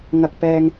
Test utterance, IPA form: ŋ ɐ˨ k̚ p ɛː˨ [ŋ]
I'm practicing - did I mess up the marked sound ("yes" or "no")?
no